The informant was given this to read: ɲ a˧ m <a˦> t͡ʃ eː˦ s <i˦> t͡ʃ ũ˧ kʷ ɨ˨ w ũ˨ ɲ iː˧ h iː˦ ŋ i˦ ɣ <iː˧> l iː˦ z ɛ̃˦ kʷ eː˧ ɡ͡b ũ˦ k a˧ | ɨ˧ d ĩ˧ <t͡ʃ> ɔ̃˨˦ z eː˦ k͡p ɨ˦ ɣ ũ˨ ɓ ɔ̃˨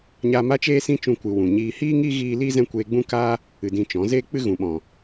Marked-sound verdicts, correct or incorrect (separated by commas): correct, incorrect, correct, correct